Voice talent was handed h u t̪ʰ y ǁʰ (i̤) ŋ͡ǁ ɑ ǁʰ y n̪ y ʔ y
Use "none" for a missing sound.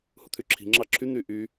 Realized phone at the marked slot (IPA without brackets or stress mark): i̤